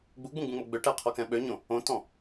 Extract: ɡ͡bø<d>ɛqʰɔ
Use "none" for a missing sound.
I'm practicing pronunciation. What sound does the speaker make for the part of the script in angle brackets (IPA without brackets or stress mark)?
ʈ